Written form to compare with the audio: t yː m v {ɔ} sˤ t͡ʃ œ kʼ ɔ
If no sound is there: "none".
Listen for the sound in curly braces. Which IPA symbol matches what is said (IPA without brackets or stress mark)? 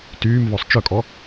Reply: ɔ